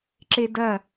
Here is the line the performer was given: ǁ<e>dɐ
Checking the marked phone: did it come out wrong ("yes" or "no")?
no